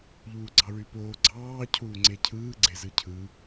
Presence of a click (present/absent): present